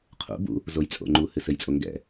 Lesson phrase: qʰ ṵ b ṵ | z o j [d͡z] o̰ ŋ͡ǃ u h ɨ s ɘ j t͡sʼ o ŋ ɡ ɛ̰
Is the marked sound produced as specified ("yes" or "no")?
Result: no